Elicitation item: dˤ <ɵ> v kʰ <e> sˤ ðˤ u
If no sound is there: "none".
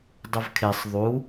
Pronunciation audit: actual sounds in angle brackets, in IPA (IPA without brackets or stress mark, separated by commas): ɵ, e